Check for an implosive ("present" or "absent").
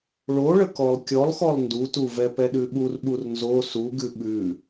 present